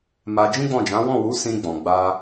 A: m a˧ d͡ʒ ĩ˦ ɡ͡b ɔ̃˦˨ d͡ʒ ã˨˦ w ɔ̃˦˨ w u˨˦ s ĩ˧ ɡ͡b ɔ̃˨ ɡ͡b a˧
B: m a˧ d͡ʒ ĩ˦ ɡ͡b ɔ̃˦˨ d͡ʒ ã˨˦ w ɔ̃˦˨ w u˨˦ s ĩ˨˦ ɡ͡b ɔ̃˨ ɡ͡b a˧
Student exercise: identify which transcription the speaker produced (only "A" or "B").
A